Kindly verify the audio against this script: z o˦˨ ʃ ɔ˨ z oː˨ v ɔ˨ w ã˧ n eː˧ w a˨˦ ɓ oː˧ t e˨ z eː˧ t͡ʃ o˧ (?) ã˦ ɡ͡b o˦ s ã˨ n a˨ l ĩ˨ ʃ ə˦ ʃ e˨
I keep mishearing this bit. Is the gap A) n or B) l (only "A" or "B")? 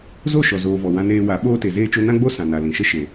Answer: A